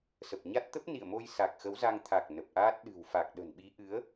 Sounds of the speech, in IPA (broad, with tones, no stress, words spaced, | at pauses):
sə˨˩p̚ɲa˦˥t̚ t̪ə˦˥p̚nḭ˧˨ə̯mo˧j sa˨˩k̚xə˨˦wza˧ŋ t̪ʰa˨˩k̚ nə˨˩p̚ʔaː˦˥t̚ ɗɨ̤˨˩wfa˨˩k̚ ɗə̤˨˩nɓi˨˦ ʔɨ˨˦ə̯